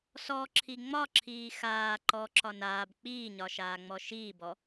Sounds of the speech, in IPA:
s ɔ ǁʰ i ŋ͡m ɒ ǁʰ iː x aː ǃ ɔ ǁ ɒ n aː b k͡p iː ɲ ɒ ʃ aː ŋ͡m ɔ ʃ iː b ɔ

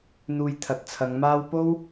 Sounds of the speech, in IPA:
n̪ uː˧ j t̪ʰ ɐ˨˥ t̚ t͡sʰ ɐ˨˧ ŋ m aː˥ w p o˥ w

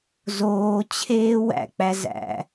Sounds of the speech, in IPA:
z oː t͡ɕʰ eː w æ̰ k͡p æ z æ̰

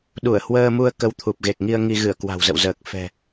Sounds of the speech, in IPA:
ɗ u˧˩ ə̯ h w əː˧ m u˧ ə̯ k ə˧ w t̪ʰ u˨˩ p̚ ɣ e˨˩ k̚ ŋ i˧ ə̯ ŋ i˧ ɣ ɨ˧˩ ə̯ k w a̤˨˩ w z ə̰˧˨ w z əː˨˩ k̚ f ɛ̤˨˩

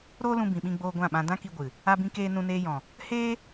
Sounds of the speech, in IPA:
ɾ oː˦ l ũ˧ b ĩ˨ ɓ ĩ˧ ɡ͡b oː˧ ɡʷ ã˦˨ ɓ ã˧ d ã˦ k i˧ ɡʷ ɨ˨ | a˦ b ĩ˦ k eː˦ n ũ˧ n eː˧ j ɔ̃˨ | h eː˦

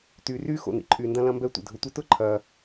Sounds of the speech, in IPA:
t yː˨ r yː˥ x o̰˨ n ḭ˨ ǃʼ yː˨ n d ɐ̃˦ l ɐ̃˦ m b ɛ˦ tʷ ɛ̰˩ dʱ ʊ˨ tʷ ɛ˥ t ʊ˥ ǃʰ ɐː˩

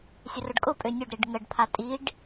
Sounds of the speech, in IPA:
sʲ ə r ʊ ɖ kʼ ʊ pʼ ø nʲ ʊ ɖ ɾ i ɖ ŋ ə ɖ pʰ a tʼ i ɖ

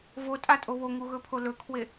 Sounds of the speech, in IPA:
v o tʼ a tʼ o β o ŋ u ɣ ɵ pʰ o l ɵ kʰ w e

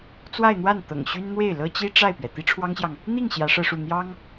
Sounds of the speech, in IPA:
t͡s w a˥˧ ɪ̯ n̪ w a˥˩ n t̪ ɤ̰˨˩ ŋ ɕ y˥ n n̪ w e˥˩ ɪ̯ l ɤ˥ t͡ɕ i˥ ʈ͡ʂ a˥˩ ɪ̯ p ɥ ɛ˩ t̪ i˥ ʈ͡ʂʰ w ɑ˥ ŋ ɕ j ɑ˨ ŋ | n̪ i˥˩ ŋ ɕ j ä˧˥ ʂ ɤ˥˧ ʂ u˥˩ n̪ j ɑ˥ ŋ

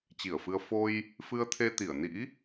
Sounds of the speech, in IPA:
t͡ɕ i˧˩ ə̯ f ɨ˧ ə̯ f o˧ j | f ɨ˧ ə̯ t̪ʰ e˧ t̪ i˧˩ ə̯ n ḭ˧˥

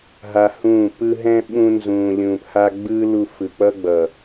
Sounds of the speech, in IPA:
ɦ a˧ h ũː˦˨ p ɯ˧ ɦ ɛ̃˦ ɓ ũ˧ n z ũː˨ lʲ ũː˨ p h a˧ ɡ͡b ɯː˦ l u˧ f ɯ˨ k͡p ʌ˦ ɡ͡b ʌ˨

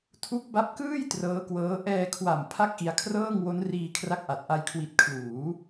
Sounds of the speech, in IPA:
tʰ u˦˥ k̚ b a˦˥ p̚ k ɯː˥˩ j t r ɤː˦˥ k w ɤː˦˥ ʔ ɛː˧ kʰ w a˨˩ m pʰ a˥˩ k̚ ʔ i˧ a̯ kʰ r ɤː˥˩ ŋ w o˦˥ n r iː˧ kʰ r a˦˥ k̚ ʔ a˨˩ t̚ ʔ a˧ j kʰ w i˨˩ t̚ kʰ l uː˩˦

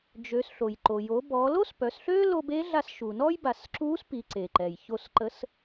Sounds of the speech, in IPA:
d͡ʒ ø˩˧ s ɬ o˩ j ǃ o˩ j o˩˧ b ɔ˩˧ l o˥ s p œ˩˧ s ɬ ø˥ l o˧ b e˧˥ ɮ a˧ s ʃ u˩ n ɔ˥ j b a˩˧ s ǁ u˧˥ s p i˩˧ ǀ e˩ ǃ ɛ˩ j ç o˧ s ǃ ə˧˥ s

